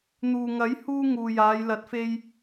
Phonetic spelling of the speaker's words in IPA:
n̪ uː˨ ŋ ɐ˨˥ j h uː˧ ŋ uː˨ j aː˨˧ j l ɐ˨˥ t̚ f e˧ j

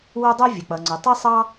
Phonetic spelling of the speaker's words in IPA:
w æ˥ dˤ ɜ˥ vʲ ə˩ k͡p ʌ˩ ŋ͡ǀ ʊ˩ tˤ i˥ sˤ ɑ˥

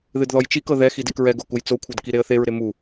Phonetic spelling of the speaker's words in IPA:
ð ɨ d ð ɔ j t͡ʃ i k ɤ ð ɛ x i d e k ɹ ɛ ɡ o k u j t͡s o kʷʰ ɤ d k i ɾ e ə̯ θ e ɹ ɾ e m u

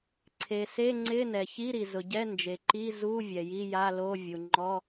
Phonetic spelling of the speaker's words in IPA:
ǀʰ e˩ s e˧˥˧ ŋ͡ǀ ɪ˧˥˧ n ɛ˩ ç i˧˥˧ ɾ i˩ z ʊ˩ ɟ ɛ˧˥˧ n d͡ʒ e˩ ǃ i˧˥˧ z u˧˥˧ vʲ ɛ˩ j i˧˥˧ j a˧˥˧ l o˧˥˧ vʲ u˩ ŋ͡ǃ ɔ˧˥˧

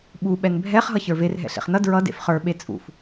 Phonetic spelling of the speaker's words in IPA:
ɓ u ɓ ɛ n bʱ ɛ χ ɦ ʌ ç ə˞ v e r ɦ ɛ̰ ɬ ḛ χ n ʌ d ɹ ʌ d ḛ f χ ə˞ ɓ e t͡sʼ ṵ f

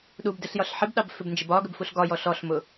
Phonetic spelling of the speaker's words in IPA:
ɗ u b d ɪ ɬ j ɒ ɬ ħ ɪ b ɗ ɑ b f ɪ b n d͡ʒ ɪ b ɒ ɡ ə b f u ɬ ɡ ɒ j ɔ ɬ ɔ ɬ m ʊ

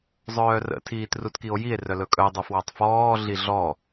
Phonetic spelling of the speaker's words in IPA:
zˤ œː r ə̰ tʰ iː t r u t k i o̯ j i e̯ r œ l ɵ kʼ œ dˤ ʉ f w ɔ tˤ f ɔː ɮ i ɮ ɔ

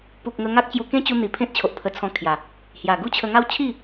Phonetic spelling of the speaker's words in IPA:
p u˨ k̚ ŋ ə˧ ŋ a˦ k̚ t͡ɕ j u˧ k ẽ˦ t͡ɕ u˧ n̪ i˨˩ pʰ ẽ˦ t̚ t͡ɕʰ o˨ ʔ pʰ ə˧ t͡sʰ ɔ̃˧ kʰ j a˨˩ | h j a˨˩ ɡ u˦ t͡ɕʰ ə˧ ŋ a˦ w t͡ɕʰ i˥˧

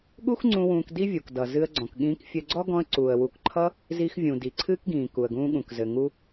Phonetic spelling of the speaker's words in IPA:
ɠ u˥ x ŋ͡ǀ ũ˧ w ũː˧ k d i˥ vʲ u˩ k d ʌ˩ z ɨ˧ ə̯ ɡ͡ǀ ɔ̃˩ k ɠ ĩː˧ k fʲ ɘ˧ ɡ͡ǀ ɔ˥ ɡ ɔ̃˧ ə̯ ǀ uː˩ ə̯ w u˩ k ǃʰ ʌ˧ | z i˧ x vʲ ũ˩ d i˩ ǀʰ ɨː˥ k ɡ ĩː˩ k u˩ ə̯ ɡ ũː˧ ɠ ũ˩ k z ɘ˩ ŋ u˧

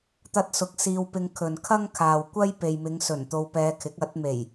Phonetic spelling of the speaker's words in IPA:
t̪ ɐ˧ t̚ s ʊ˨˥ k̚ s iː˧ w p ɪ˧ ŋ kʰ ɵ˨ n kʰ ɐ˥ ŋ kʰ aː˨ w kʷ ɐ˥ j p e˨ j m ɪ˨˧ ŋ s ɵ˨˩ n t̪ o˧ w p ɛː˧ kʰ ɪ˨˥ k̚ ɐ˨˥ t̚ m e˨˩ j

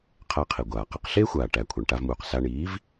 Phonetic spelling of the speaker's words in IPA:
qʰ æ˧ qʰ i˩ ɡʷ aː˩ q e˧ q ɬ eː˥ xʷ aː˩ ʈ æ˩ kʷʰ a˩ ɳ ʈ a˧ v m uː˩ q s a˧ ɳ iː˩˥ v

